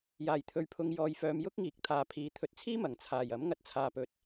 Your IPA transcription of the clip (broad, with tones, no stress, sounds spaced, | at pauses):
j aː˨˩ j t̪ʰ ɵ˨ ɥ pʰ ʊ˨ ŋ j ɔː˨ j f œː˨˧ m j ʊ˥ k̚ ŋ iː˨ k̚ t̪ʰ aː˨ pʰ iː˨˧ t̪ʰ ɵ˨ t̚ t͡sʰ iː˥ m ɐ˨˩ ŋ t͡sʰ aː˨˩ j ɐ˨˥ m ŋ ɐ˧ t̚ t͡sʰ aː˨ p ɵ˨ t̚